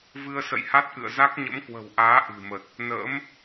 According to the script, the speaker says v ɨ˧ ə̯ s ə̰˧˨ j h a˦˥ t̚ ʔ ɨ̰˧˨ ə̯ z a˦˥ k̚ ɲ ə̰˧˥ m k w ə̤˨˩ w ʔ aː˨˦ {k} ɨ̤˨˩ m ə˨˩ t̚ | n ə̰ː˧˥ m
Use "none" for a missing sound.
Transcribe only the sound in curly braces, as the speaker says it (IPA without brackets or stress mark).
ʔ